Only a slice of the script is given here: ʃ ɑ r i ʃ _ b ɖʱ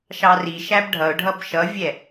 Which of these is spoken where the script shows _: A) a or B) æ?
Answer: B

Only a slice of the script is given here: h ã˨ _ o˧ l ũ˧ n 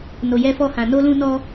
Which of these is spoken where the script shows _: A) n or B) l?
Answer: A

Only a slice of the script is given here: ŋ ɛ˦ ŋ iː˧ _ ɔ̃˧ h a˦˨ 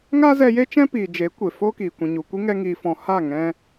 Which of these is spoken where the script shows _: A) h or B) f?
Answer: B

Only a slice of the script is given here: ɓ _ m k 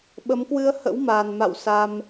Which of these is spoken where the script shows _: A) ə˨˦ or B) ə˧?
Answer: A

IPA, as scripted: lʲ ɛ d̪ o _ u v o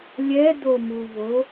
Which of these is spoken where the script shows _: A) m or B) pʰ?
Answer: A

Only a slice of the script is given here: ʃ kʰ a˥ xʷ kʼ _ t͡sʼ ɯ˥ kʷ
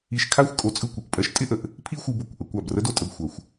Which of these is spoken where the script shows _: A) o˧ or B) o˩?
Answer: A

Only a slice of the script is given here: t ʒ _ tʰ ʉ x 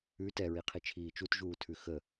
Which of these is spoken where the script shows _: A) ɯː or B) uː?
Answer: B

